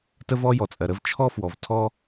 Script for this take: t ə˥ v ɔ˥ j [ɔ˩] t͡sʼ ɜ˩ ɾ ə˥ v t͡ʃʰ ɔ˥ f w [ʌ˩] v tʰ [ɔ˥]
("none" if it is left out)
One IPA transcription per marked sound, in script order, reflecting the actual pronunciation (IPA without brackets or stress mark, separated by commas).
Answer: ɔ˩, ɔ˩, ɔ˥